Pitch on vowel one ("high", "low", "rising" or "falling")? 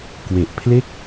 low